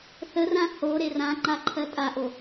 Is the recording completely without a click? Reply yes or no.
no